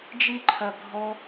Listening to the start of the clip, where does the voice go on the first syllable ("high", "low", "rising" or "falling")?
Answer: high